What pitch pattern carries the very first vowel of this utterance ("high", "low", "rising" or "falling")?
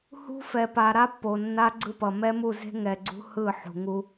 high